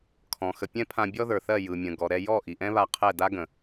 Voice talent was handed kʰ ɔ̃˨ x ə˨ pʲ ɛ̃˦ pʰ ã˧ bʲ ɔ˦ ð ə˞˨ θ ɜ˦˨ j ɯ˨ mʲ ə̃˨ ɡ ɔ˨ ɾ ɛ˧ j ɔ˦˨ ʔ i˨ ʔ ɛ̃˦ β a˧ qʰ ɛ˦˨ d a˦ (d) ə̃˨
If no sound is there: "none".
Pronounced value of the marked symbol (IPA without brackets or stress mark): ɡ